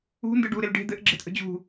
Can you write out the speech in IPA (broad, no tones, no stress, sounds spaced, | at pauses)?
ṳ n d ɯ ɖ u ɾ e l ɖ e̤ d̪ ɘ ʔ ɡ͡ǁ e t ʔ ə̤ d͡ʑ ṳ